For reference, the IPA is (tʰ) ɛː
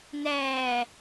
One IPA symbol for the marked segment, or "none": n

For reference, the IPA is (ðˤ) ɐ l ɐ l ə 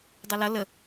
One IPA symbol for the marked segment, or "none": dˤ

